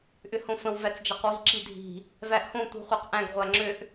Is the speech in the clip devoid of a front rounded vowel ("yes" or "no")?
no